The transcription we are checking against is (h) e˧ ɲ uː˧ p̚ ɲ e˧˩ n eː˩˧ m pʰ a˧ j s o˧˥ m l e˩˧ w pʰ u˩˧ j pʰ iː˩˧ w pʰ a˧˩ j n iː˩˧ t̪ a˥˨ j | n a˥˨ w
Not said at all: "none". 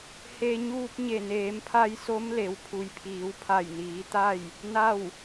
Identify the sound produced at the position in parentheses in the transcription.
h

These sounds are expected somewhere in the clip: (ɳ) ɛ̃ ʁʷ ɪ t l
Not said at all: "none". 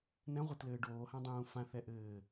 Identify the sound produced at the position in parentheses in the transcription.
n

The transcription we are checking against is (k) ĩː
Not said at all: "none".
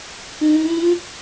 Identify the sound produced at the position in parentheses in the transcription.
k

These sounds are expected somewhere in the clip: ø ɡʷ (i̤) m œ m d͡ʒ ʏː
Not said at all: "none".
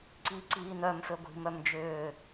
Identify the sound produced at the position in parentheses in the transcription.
i̤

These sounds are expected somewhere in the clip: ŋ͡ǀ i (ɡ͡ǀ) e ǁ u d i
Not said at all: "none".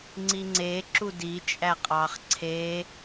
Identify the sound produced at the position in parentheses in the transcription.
ŋ͡ǀ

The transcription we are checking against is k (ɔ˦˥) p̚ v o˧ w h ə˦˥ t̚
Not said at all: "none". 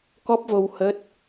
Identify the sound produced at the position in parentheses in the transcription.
ɔ˦˥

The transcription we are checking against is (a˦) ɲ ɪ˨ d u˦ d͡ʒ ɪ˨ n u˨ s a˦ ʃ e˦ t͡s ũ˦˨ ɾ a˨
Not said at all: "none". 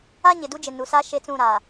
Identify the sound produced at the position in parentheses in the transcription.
a˦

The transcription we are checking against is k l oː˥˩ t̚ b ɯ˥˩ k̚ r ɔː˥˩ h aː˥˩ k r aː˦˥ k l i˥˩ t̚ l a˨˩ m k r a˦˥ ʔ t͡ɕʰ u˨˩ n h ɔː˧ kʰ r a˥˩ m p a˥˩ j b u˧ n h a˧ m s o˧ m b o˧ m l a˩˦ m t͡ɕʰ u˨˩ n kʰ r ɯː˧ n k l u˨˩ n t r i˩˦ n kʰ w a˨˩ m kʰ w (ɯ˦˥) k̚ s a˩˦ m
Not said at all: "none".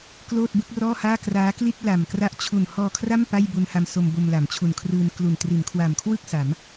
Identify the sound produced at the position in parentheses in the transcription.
ɯ˥˩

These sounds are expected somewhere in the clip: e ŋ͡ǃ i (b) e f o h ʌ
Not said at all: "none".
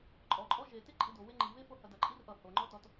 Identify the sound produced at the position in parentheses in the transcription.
β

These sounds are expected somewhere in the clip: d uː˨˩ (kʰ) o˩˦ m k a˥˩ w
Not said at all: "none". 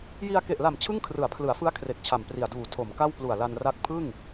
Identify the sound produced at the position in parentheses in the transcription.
tʰ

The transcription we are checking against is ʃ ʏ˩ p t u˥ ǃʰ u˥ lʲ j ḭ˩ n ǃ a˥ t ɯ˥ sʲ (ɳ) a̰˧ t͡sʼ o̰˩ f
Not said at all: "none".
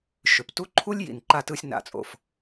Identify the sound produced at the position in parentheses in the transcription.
n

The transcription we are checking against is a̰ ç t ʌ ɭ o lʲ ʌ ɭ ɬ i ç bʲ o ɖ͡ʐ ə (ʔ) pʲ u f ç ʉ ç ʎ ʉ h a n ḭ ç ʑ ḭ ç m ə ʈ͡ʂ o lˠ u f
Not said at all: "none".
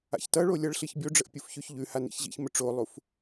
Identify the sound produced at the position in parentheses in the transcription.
ʔ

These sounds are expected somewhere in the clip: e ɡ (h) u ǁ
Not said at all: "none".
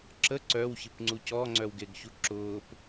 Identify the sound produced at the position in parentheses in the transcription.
ç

